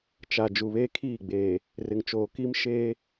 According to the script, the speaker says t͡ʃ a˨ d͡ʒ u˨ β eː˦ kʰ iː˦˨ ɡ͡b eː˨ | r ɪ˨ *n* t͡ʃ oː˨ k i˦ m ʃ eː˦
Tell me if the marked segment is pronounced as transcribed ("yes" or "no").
no